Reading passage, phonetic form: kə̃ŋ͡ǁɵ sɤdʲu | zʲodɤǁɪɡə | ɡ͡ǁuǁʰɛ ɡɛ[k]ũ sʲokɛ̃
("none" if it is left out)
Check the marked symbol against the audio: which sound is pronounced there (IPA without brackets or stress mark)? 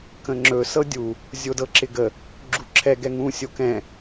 ŋ